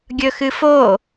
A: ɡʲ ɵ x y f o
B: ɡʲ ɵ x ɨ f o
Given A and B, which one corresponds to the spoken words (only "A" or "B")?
B